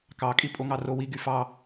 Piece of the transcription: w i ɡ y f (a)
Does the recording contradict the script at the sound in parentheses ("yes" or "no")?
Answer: yes